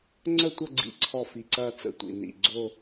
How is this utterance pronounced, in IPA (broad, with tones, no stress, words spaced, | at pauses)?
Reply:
ŋ͡ǀə˥˧tʷə˥˧ɡ͡ǀḭ˧˩ǀʰɔ˧˩ fi˧˩ǀɐː˥˧t͡sə̰˥˧tʷḭ˧˩ nḭ˧˩ɡ͡ǀo˥˧